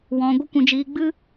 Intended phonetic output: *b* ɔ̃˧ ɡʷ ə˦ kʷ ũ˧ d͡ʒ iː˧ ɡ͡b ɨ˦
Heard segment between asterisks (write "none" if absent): w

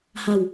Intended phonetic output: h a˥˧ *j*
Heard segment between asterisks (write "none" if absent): w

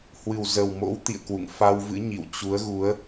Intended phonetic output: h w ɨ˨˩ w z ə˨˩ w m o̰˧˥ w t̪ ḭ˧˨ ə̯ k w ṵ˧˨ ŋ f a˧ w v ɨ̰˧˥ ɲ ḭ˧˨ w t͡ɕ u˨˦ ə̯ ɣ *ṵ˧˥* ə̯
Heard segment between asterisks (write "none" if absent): u˨˦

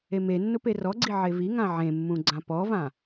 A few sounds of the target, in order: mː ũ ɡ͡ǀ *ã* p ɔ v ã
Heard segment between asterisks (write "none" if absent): ã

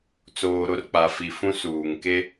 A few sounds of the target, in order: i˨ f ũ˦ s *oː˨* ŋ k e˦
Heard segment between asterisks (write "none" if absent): uː˨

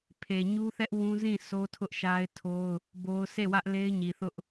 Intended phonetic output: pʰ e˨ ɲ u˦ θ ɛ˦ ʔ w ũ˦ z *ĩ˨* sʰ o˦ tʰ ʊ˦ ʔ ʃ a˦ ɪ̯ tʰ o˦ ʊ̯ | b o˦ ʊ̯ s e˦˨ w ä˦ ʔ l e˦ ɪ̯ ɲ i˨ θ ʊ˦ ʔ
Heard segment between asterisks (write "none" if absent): ĩ˦˨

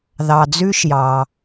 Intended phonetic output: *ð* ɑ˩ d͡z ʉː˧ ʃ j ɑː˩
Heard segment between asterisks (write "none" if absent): ð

